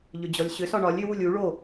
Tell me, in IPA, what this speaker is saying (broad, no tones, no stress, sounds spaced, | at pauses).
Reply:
ʎ ʏ d͡ʑ ɔ lʲ ɕ ʏ s ɒ ɳ ɒ lʲ ʏ w u lʲ u ɭ o